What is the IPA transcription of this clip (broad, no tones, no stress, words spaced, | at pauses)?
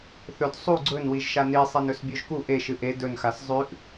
θɵd sˤu ɡ͡ǀɵnwiʒʃa ni sˤenɵsbʲoʒku ʔe ʃɨʔe dɵnxas zˤʉʔ